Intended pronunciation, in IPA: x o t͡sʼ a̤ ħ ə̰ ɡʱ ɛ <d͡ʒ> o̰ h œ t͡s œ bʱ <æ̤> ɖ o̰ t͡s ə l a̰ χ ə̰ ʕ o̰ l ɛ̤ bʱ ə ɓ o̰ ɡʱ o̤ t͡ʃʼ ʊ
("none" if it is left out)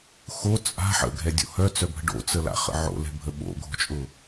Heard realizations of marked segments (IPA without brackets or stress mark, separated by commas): dʲ, ə̤